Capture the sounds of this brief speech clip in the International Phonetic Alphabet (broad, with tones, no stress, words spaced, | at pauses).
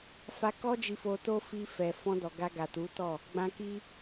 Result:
fa˧kɔ˦ d͡ʒi˧fo˧to˦ fi˧fɛ˨ fɔ̃˧dɔ˨ ɡa˧ɡa˨tu˨˦tɔ˦˨ | ɡ͡bã˧ki˦